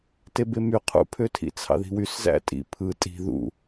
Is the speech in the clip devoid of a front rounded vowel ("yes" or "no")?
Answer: no